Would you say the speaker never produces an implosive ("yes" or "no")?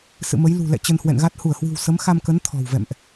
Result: yes